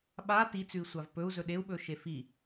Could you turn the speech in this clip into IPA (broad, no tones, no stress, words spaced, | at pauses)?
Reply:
ɓa tit͡sʉi̯sʷav pɵu̯zɵ ɗeu̯ɓɵʃe fi